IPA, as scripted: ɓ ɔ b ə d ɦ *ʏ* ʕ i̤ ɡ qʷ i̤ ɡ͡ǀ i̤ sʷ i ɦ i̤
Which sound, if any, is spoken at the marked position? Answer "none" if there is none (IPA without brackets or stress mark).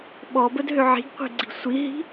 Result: ʏ